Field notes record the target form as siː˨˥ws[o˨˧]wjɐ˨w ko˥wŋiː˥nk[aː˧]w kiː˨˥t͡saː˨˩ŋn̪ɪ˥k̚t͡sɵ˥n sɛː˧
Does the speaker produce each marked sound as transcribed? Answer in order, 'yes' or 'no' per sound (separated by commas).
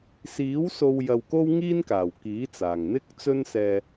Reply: no, no